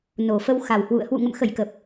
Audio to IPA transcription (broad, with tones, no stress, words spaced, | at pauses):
no˨˩fə˧wxa˨˩whwṵ˧˨ə̯ hwṵ˧˨ŋə̰˧˨m xə˧˩jkə˨˩p̚